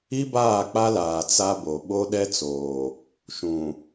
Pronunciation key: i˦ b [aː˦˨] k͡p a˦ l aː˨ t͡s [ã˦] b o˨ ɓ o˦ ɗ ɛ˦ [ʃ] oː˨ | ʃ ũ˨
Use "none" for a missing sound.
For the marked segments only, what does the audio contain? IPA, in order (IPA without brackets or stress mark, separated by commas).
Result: aː˦˨, a˦, t͡s